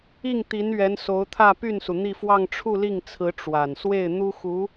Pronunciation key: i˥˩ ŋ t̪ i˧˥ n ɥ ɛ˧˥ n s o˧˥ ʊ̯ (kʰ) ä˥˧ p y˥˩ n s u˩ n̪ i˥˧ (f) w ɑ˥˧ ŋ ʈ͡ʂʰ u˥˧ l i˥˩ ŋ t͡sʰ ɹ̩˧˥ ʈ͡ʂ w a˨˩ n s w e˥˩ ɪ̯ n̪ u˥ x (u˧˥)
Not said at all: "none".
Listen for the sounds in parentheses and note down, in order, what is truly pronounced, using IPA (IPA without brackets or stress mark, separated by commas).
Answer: t̪ʰ, f, u˧˥